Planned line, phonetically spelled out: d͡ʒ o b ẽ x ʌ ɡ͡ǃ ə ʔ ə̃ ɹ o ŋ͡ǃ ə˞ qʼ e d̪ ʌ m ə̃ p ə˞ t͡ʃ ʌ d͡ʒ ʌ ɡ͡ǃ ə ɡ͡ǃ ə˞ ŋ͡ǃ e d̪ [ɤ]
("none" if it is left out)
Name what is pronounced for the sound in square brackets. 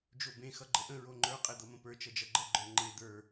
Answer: ə˞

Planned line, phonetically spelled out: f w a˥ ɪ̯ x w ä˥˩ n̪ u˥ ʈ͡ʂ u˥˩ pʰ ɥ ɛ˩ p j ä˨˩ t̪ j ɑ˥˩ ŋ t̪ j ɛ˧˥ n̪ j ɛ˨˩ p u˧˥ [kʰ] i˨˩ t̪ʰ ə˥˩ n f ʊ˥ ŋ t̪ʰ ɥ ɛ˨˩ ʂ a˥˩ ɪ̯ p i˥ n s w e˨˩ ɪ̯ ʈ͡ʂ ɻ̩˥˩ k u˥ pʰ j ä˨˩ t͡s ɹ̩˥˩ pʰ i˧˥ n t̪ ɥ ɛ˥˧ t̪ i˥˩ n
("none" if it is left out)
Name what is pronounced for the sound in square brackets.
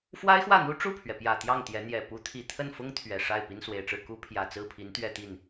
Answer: t̪ʰ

